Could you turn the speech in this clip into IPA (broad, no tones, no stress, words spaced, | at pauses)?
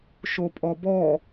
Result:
ʃopʼɔbɔ